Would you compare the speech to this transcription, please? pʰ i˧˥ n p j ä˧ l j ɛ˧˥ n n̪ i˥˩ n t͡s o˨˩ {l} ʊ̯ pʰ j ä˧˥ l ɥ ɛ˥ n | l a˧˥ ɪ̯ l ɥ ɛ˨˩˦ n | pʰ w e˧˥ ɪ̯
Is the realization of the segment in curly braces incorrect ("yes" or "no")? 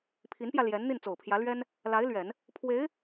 yes